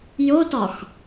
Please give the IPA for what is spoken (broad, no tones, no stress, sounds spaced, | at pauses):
j o t ɒ x